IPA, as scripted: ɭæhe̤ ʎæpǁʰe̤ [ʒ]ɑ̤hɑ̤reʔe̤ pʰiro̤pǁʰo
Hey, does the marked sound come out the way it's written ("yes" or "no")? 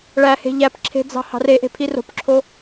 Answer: no